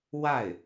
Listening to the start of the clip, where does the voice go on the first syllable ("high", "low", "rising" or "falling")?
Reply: falling